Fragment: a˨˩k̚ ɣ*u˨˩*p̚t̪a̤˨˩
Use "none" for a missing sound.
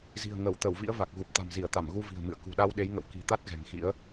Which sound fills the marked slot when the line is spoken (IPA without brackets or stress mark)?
u˨˩